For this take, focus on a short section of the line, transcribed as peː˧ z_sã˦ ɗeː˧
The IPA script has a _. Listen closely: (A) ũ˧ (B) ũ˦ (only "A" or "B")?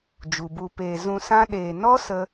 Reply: A